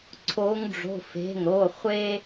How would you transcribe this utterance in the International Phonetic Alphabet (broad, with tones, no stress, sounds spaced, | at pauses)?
ǀʰ o˨˦ ŋ ɖ͡ʐ o̤˩˧˩ f e̤˩˧˩ ŋ ɾ o˩˧˩ χʷ e˦